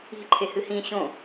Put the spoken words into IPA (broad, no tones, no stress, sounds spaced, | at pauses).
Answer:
i̤ ǃʰ e h ɨ h ĩ ɕ õ